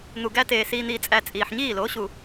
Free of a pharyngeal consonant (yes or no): no